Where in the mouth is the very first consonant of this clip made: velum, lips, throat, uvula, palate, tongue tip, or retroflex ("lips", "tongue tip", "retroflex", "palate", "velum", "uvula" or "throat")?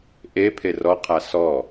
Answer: throat